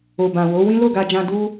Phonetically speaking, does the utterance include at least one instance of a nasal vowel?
yes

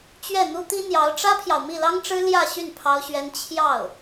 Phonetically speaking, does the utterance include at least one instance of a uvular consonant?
no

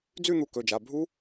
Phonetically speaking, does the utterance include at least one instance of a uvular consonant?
no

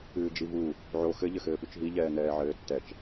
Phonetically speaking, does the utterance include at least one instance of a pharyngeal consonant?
yes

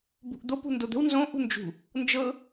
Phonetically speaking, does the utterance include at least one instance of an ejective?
no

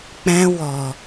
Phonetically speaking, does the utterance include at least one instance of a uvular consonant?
no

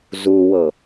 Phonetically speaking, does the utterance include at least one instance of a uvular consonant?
no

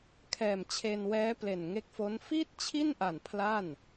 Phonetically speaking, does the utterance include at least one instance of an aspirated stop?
yes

